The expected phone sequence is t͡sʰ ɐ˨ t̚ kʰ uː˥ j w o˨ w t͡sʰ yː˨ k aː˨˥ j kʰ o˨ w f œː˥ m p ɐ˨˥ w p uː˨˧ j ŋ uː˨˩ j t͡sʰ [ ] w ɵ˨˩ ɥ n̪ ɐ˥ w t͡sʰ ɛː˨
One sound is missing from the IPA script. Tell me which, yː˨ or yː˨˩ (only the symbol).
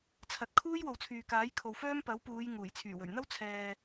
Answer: yː˨˩